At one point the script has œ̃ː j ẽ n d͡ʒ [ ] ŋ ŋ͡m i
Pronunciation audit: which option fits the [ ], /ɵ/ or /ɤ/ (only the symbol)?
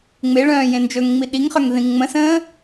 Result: ɵ